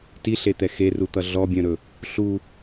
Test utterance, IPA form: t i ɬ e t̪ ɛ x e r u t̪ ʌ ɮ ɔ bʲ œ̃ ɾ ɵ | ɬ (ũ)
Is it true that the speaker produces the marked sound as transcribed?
no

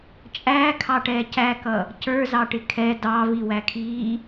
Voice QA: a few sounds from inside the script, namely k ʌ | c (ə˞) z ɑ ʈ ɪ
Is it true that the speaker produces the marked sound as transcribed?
yes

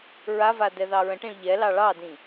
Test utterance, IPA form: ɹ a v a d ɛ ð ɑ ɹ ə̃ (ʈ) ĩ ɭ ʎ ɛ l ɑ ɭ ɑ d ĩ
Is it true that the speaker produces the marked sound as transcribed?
yes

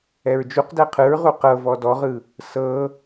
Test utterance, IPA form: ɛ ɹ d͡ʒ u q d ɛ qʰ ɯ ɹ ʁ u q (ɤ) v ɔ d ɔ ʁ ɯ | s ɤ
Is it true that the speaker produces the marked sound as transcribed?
yes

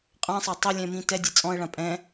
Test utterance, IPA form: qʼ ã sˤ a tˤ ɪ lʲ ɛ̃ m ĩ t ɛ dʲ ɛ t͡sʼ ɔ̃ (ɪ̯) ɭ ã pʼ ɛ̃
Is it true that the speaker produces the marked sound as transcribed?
no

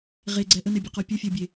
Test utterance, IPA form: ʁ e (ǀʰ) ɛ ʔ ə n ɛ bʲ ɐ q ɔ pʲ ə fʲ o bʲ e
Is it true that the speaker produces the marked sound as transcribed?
no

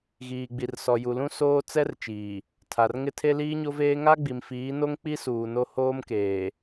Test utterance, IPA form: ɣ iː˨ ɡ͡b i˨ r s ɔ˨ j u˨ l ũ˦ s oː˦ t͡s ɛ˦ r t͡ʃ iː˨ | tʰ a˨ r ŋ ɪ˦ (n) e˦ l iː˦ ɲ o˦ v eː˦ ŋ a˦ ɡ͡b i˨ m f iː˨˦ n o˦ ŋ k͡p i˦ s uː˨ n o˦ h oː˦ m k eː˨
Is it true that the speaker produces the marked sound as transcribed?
no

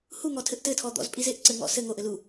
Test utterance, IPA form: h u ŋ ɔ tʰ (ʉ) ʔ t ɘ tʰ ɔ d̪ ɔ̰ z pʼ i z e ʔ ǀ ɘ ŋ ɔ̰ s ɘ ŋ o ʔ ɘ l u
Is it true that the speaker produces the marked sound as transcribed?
no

